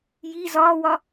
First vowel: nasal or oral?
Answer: oral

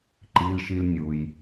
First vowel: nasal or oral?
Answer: oral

